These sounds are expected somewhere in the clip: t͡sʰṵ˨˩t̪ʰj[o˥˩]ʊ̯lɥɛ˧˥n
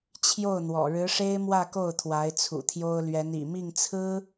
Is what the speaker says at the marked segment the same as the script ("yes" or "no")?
no